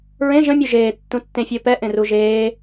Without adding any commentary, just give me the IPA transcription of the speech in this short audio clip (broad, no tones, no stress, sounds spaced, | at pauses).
ɹ ẽ ʒ ə̃ mʲ u ʒ eː tː ũ tː ẽ fʲ əː p ɛ ʔ ẽ r u ʒ eː